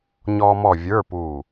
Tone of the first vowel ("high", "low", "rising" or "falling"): high